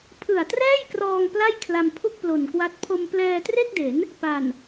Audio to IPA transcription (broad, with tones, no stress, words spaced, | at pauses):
pʰɯ˨˩a̯trɛː˥˩jkrɔː˧ŋ pla˥˩jkʰla˧m pʰu˥˩k̚plo˨˩nkwa˦˥t̚ pʰo˧mplɛː˧tre˥˩k̚de˩˦n | pa˨˩n